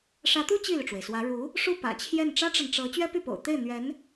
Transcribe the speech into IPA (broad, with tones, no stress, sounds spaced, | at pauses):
ʂ ä˧˥ t̪ u˥ t͡ɕ i˥˩ l y˩ ʈ͡ʂ w e˩ ɪ̯ s w ä˧˥ ɻ u˧˥ | ʂ u˥˩ p ä̰˨˩ t͡ɕʰ j ɛ˥˩ n ʈ͡ʂ ä˥ ʈ͡ʂ ə˨ n ʈ͡ʂ ɤ˧˥ t͡ɕ ɥ ɛ˥ p y˥˩ p o̰˨˩ ʊ̯ t̪ e˥˩ ɪ̯ n̪ ɥ ɛ˧˥ n